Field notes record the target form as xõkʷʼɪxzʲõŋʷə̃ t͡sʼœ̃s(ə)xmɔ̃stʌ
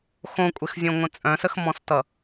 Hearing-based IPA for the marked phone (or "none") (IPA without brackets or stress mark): ə